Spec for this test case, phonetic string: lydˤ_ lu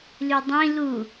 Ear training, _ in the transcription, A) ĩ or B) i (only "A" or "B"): A